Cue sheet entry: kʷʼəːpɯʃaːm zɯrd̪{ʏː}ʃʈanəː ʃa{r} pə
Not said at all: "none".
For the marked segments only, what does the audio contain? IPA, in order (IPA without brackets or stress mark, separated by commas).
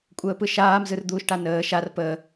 uː, r